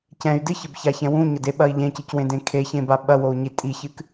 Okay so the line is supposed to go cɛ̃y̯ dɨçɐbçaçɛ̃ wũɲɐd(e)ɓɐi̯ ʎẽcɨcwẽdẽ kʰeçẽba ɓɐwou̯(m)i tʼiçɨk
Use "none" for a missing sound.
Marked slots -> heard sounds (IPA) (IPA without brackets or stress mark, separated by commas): e, ɲ